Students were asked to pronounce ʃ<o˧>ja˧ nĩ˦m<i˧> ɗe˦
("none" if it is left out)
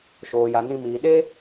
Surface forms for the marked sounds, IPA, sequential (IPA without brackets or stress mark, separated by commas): oː˧, iː˧